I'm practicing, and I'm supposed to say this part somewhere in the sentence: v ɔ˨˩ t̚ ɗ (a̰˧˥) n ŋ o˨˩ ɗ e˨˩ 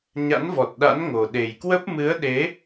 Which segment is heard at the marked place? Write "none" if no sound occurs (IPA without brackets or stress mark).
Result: a̰˧˥